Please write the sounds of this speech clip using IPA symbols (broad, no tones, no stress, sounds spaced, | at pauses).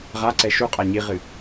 ʁ a ǀ ɛ ʃ u qʼ a ɲ i ʁ ɨ